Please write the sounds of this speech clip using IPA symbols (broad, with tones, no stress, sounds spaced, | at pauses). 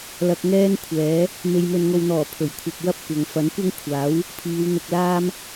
l ɐ˧ k̚ ŋ ɛː˥ n kʷʰ ɛː˨˥ | m e˨ j m ɵ˨ n ŋ o˨ w n̪ ɔː˨˩ pʰ ɵ˨˩ ɥ kʷʰ ɐ˨ p̚ w ɐ˥ p̚ kʷ ɐ˨˧ ŋ f ɐ˨˥ n kʷ ɐ˥ ŋ kʷʰ aː˨˥ w | pʰ iː˨˧ w n̪ ʊ˧ k̚ l aː˥ m